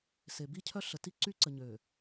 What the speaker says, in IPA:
s e˨ b i˦ cʰ œ˦ ɬ ə˨ t i˦ ǀ y˦ ǀ ə˨ ɲ ø˨

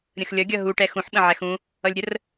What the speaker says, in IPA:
ɾʲ ə̃ x lʲ ʌ ɡʲ ʌ ɦ u ʈ ɛ x ũ ħ ɓ ə̃ ʕ ɛ x ũ | ʌ lʲ ɾʲ ə r

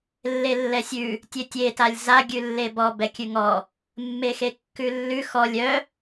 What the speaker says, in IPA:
lː e lː ɛ sʲ ʉ | tʲ e tʲ e t a lʲ z a ɡʲ ʉ lː e b ɔ b ɛ kʲ ʉ ŋ ɔ | mː e x e kː ʉ lː ʉ x ɔ lʲ œ

